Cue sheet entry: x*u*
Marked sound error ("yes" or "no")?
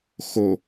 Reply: yes